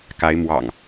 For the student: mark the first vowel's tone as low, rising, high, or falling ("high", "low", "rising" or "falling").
rising